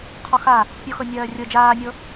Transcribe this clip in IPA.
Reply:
qʰɔxa | pʲɔxɤnʲɜːrʲɤ d͡ʒaːnʲɤ

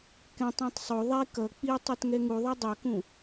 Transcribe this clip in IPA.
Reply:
kɛ̃tˤɛ̃tˤ sˤo ðˤe kʌ k͡pi tˤɛtŋɛŋuðˤɛ dˤʌkũ

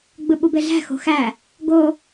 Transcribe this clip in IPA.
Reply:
ɡ͡bɯɓubeɮæ̤ xo̤xæ | ɡo

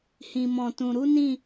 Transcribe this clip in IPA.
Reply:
hĩ˧mɔ̃˧tũ˧ ɾu˦nĩ˦˨

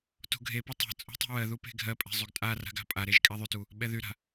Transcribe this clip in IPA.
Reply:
to̤ɡʱepɛ tˤa̤ t͡sʼṳtˤo̤wɜðu pe̤ɡʱɜpʼɛ̤ zˤyɡtʼara̤ ɡa̤pʼaɾeʒ kʼɛðˤytu | ɓɛðyɾa̤

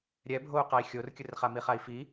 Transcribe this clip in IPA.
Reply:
ɾʲɛbʱou̯qai̯ xʲorkʲɯrχa miχai̯fi

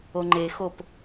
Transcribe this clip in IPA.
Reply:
oŋ͡ǃexop

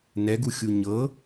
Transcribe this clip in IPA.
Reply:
nɛɡuxʲu ɲɤ

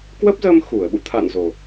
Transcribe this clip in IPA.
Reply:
kwə˦˥p̚zə˧m xu˧˩ə̯ɓṵ˧˨ t̪ʰa̰˧˨nzo˨˩

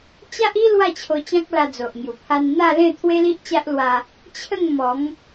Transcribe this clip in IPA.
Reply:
t͡ɕa˦ʔi˦ lwa˥˧t͡ɕʰo˧ t͡ɕã˦k̚la˧d͡zo˨ʔŋju˨˩ pʰa˧nn̪a˥˧lẽ˥˧ t̪ʰwe˦li˦ʔt͡ɕa˦ʔlwa˧ | t͡ɕʰə˥˧ŋmɔ˨˦ŋ

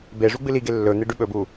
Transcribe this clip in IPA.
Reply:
be ʐuɡ͡bɨliɡe lːɵn̪e ɖʉɓɵbu

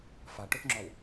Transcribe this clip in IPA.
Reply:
faʈʊθŋ͡ǁɔw

